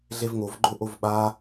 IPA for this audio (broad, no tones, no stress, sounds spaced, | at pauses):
ɮ e v ŋ o v ɡ͡ǃ o ʔ o v ɓ a